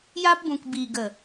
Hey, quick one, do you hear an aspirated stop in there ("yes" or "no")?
no